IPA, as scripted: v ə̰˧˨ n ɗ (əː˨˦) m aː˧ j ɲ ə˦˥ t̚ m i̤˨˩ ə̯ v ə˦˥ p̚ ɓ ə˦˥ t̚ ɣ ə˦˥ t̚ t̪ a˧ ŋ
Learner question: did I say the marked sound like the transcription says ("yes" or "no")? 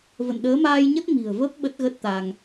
yes